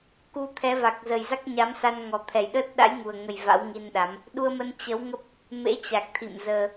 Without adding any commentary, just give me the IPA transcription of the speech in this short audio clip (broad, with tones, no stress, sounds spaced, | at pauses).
k u˧ t̪ʰ ɛ˨˦ v a˨˩ k̚ z ə˨˩ j z a˦˥ k̚ ɲ a˨˦ m s a˧ n ŋ ɔ˨˩ t̪ʰ ɛ˨˩ j ɗ əː˦˥ t̚ ɗ a̰˧˥ j ŋ u˨˩ ə̯ ŋ ə˨˩ j v a̰˧˥ w ŋ i˧ n ɗ a˨˦ m | ɗ u˧ ə̯ m ə˧ n t͡ɕ ə˨˦ w ŋ ə˦˥ p̚ | m ḛ˧˥ t͡ɕ a˨˩ k̚ t̪ʰ ḭ˧˨ m z əː˧